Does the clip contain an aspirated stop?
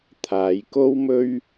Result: yes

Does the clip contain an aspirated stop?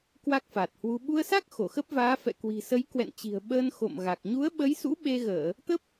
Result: no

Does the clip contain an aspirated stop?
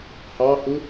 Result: no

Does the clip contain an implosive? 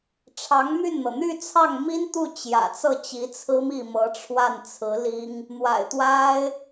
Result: no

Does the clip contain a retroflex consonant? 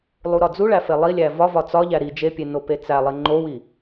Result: yes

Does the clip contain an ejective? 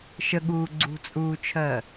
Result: yes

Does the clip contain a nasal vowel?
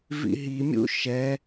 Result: no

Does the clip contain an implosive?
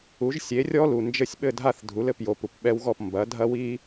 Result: yes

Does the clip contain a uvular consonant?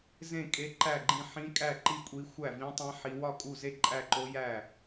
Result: no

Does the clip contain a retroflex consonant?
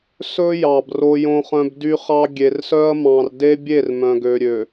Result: no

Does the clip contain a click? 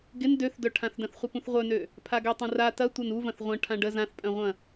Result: no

